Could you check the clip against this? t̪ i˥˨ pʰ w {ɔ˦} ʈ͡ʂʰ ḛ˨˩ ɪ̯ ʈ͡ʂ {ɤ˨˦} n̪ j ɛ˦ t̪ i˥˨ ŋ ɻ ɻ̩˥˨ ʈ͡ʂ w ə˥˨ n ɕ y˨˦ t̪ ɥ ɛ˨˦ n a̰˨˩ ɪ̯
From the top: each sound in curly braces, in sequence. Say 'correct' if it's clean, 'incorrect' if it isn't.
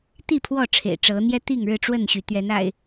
incorrect: ɔ˥˨, correct

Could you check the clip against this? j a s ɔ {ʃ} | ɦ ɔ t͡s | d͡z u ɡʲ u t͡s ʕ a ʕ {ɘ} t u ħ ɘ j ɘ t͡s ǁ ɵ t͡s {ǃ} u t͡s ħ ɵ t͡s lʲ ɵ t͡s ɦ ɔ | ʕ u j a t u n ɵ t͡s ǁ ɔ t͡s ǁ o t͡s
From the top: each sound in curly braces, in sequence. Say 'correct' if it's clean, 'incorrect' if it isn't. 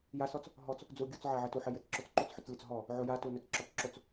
incorrect: t͡s, correct, correct

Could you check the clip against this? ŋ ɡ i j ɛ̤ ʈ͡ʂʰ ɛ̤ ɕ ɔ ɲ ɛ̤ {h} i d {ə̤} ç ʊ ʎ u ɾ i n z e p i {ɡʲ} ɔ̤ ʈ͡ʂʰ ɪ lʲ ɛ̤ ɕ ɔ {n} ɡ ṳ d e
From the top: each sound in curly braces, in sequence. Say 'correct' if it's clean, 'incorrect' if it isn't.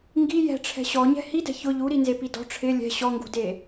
correct, incorrect: ɛ̤, incorrect: d, incorrect: ŋ

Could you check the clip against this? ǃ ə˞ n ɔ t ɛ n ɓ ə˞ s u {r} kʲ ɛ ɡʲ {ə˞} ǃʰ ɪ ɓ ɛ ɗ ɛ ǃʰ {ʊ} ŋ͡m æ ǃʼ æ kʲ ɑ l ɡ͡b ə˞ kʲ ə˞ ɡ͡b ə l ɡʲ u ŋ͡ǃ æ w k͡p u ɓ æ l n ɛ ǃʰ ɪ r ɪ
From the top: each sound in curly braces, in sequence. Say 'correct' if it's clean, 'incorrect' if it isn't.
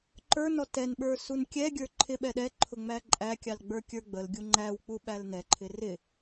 incorrect: n, correct, correct

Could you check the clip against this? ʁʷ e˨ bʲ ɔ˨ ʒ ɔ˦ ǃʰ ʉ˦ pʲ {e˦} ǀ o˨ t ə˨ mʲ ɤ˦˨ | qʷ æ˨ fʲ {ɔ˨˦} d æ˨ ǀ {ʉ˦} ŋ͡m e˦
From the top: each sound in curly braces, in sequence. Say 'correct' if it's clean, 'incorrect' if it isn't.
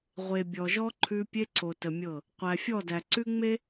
correct, incorrect: ɔ˦˨, correct

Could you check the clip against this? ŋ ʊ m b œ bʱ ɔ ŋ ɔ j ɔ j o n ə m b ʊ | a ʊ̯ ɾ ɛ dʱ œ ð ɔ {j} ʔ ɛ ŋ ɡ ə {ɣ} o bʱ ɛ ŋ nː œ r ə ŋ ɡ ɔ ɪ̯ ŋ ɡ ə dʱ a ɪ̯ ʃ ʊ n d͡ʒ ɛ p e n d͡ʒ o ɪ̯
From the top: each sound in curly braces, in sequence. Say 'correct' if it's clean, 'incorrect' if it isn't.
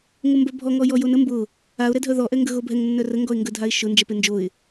incorrect: none, correct

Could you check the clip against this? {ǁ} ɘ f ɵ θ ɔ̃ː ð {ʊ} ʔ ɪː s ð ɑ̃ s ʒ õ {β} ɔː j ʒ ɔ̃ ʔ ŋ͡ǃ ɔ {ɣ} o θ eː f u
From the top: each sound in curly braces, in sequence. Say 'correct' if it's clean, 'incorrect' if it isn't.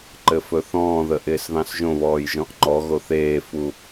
incorrect: ǃ, incorrect: ə, correct, correct

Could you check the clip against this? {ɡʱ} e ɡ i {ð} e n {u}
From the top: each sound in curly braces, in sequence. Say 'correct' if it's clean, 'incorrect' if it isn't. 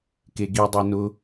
incorrect: k, incorrect: dˤ, incorrect: ʊ

